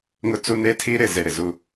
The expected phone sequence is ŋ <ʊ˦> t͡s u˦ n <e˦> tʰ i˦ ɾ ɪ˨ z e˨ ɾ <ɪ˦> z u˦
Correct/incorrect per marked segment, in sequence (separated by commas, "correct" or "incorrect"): correct, correct, incorrect